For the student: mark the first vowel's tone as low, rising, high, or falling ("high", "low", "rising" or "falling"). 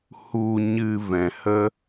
low